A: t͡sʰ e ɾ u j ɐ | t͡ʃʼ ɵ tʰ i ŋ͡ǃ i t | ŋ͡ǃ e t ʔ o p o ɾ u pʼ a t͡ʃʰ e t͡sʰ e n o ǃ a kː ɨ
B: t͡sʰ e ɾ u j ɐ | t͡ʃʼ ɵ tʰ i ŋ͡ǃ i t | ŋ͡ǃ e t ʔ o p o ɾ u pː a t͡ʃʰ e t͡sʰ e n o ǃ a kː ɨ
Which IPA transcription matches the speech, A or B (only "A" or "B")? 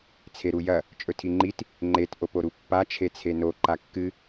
B